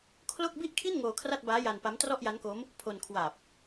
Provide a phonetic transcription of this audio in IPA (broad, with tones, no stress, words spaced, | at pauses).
kʰlo˥˩k̚ bi˥˩ʔkʰi˥˩n ŋoː˧kʰra˥˩t̚baː˦˥ ja˧n pa˦˥m trɔ˥˩ʔja˦˥nko˦˥m | pʰo˧nkʰwa˨˩p̚